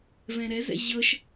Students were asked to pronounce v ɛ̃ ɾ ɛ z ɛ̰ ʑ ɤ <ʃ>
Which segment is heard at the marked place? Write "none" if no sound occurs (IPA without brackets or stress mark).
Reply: ʃ